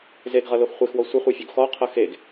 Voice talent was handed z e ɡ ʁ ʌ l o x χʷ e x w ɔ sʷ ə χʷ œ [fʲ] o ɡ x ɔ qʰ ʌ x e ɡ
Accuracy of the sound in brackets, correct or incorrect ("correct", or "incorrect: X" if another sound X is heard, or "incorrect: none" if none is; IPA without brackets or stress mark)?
correct